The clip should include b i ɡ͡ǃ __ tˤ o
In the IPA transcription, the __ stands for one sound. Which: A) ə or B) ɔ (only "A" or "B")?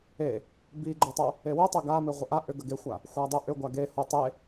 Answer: A